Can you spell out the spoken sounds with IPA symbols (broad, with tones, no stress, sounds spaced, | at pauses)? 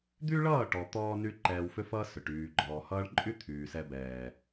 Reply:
d̪ y˦ ɭ ʌː˦˨ ʈ ɔ˨ t̪ ɔː˦ n y˦ ǃ ɛː˧ w f ʏ˦ f ʌː˦ s ʏ˨ ʈ yː˨ ɡ͡ǃ ɔː˨ h ʌː˧ ɭ ǃʼ y˦ t̪ʰ yː˨ s ɛ˧ b ɛː˨